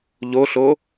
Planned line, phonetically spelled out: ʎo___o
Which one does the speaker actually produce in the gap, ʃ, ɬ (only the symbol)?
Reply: ɬ